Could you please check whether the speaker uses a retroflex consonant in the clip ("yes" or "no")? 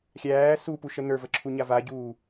no